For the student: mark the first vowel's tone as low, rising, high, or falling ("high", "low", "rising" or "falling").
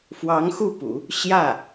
rising